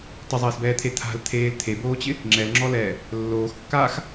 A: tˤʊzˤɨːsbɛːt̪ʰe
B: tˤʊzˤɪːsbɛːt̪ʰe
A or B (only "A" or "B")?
B